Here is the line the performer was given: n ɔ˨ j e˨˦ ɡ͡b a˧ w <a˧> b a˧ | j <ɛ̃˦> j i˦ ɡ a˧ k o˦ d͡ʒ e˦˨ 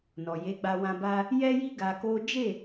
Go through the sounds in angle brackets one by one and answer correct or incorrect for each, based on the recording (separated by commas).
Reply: incorrect, incorrect